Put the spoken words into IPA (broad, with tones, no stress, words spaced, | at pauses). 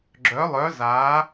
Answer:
ɡ͡ǁœ˨˥lˠœ˨˥zaː˨˥